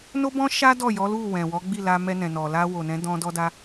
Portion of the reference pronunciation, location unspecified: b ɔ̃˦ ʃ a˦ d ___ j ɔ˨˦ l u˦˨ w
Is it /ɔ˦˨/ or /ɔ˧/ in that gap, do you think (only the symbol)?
ɔ˦˨